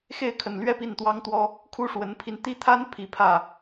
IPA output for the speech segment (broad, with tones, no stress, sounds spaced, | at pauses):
x e˥˩ ɪ̯ kʰ ə˨˩ n l ɥ ɛ˥˧ p i˥˩ n t̪ w ɑ˥ ŋ t̪ w ɔ˥ | kʰ u˥ ʂ w ə˧˥ n pʰ i˧ n t̪ i˥˩ t̪ʰ a˥ n pʰ i˧˥ pʰ ä˥˩